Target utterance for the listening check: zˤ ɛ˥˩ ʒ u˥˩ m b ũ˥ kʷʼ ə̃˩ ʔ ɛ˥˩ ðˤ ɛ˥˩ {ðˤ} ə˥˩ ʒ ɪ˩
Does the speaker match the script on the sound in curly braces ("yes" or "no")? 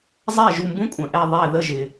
no